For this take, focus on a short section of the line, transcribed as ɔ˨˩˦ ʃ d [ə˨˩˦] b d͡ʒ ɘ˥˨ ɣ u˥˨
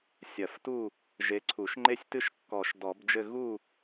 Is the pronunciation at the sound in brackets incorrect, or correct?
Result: incorrect